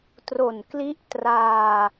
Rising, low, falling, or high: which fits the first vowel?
low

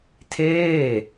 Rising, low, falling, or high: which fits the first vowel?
falling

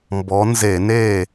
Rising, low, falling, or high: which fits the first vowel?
rising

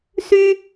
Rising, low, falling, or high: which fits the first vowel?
high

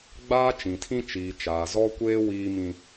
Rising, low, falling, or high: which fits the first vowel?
high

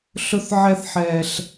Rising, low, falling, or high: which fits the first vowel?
high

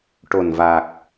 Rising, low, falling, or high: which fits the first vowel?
low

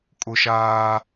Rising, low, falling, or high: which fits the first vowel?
high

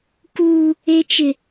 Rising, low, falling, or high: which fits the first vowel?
high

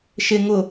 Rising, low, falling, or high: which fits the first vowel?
low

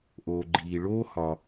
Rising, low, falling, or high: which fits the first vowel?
low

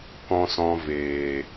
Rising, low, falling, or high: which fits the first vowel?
low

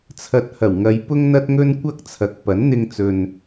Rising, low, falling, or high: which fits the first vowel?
low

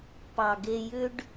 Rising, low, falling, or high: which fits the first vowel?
low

